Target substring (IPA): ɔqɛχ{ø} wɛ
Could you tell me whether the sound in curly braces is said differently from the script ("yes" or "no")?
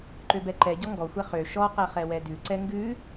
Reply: yes